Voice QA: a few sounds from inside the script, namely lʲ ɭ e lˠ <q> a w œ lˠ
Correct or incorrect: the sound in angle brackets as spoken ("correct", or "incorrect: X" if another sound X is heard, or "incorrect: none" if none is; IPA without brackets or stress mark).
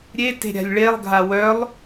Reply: incorrect: ɡʱ